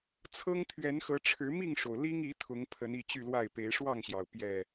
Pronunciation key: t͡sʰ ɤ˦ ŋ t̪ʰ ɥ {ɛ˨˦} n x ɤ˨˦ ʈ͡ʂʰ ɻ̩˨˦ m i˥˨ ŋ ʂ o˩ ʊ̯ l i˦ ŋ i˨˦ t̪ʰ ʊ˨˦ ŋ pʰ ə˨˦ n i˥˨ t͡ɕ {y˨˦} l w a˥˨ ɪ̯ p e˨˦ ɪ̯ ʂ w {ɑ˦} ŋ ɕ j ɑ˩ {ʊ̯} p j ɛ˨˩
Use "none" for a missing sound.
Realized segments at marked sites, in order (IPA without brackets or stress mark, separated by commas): ɛ˨˦, y˥˨, ɑ˥˨, ʊ̯